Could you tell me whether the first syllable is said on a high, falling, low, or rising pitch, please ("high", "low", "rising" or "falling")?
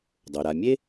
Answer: low